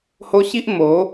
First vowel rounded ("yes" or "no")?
yes